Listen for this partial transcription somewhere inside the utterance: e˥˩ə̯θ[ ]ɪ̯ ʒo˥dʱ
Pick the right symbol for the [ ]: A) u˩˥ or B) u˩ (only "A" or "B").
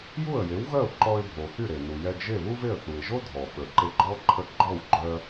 B